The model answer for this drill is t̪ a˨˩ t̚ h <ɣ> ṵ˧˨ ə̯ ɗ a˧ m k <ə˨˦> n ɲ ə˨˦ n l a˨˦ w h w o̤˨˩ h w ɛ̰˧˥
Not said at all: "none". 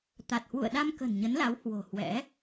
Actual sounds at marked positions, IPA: w, ə̤˨˩

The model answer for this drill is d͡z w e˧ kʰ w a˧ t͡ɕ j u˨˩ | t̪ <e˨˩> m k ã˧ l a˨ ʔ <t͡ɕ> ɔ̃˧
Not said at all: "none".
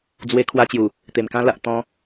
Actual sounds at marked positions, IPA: e˨˩, t̪

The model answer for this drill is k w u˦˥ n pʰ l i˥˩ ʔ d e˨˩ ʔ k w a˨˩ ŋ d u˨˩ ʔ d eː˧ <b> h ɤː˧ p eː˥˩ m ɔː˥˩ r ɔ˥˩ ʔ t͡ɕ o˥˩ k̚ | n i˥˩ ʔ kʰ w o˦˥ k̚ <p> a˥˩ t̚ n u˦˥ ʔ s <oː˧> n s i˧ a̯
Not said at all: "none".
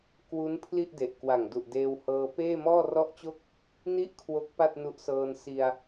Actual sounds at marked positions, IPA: w, p, ɤː˧

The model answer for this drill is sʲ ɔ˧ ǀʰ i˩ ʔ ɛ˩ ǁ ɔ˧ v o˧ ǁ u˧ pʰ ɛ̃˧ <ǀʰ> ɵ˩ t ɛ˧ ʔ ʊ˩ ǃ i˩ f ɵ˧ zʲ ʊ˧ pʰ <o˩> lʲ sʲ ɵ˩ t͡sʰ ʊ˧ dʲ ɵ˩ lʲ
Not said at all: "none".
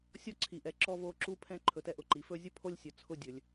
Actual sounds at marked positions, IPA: ǃʰ, o˧

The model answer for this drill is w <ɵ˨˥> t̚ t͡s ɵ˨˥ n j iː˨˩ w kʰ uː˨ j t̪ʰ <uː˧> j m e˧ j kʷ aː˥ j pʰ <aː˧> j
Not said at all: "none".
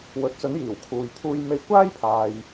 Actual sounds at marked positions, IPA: ɵ˨˥, uː˧, aː˧

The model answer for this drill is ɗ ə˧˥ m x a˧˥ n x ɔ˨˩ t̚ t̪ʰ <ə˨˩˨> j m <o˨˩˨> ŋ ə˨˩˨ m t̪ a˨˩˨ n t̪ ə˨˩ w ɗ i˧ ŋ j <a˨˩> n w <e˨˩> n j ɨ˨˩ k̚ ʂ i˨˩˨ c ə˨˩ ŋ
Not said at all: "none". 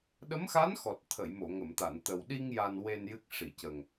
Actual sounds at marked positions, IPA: ə˨˩˨, o˨˩˨, a˨˩, e˨˩

